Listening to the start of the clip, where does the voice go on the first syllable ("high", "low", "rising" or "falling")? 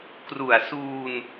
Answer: low